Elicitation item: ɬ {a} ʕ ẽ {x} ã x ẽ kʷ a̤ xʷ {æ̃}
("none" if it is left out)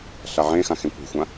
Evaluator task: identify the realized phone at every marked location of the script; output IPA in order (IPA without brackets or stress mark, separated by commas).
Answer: a, x, ã